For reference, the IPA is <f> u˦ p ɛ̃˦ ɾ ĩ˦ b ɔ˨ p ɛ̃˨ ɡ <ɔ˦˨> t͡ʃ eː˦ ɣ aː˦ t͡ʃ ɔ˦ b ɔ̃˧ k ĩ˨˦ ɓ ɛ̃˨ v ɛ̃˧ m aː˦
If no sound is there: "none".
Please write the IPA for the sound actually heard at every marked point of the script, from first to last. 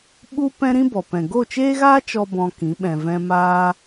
ɓ, o˦˨

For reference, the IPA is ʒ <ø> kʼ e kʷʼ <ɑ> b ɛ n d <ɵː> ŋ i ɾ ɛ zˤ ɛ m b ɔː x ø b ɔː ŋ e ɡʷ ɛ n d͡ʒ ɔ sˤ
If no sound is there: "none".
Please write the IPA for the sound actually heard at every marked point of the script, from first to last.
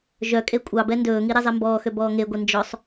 œ, ɑ, ɵː

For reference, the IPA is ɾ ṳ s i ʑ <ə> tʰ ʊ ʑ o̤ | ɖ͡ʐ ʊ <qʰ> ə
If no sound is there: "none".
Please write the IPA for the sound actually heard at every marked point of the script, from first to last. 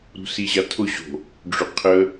a, qʰ

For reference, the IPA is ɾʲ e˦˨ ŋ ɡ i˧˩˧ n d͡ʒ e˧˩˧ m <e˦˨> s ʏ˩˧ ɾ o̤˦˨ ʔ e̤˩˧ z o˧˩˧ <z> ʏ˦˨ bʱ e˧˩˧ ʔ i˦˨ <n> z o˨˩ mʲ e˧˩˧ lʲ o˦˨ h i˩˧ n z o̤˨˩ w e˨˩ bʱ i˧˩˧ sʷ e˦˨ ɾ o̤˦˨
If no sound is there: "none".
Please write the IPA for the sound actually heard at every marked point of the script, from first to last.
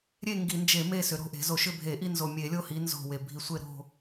e˦˨, ʃ, n

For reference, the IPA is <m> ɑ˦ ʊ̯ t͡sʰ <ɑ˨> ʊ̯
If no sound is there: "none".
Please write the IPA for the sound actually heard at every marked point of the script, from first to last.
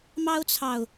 m, ɑ˨

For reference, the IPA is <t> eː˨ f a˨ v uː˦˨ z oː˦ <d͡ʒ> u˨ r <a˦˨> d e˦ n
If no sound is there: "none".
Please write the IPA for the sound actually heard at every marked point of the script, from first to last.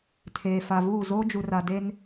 tʰ, d͡ʒ, a˨

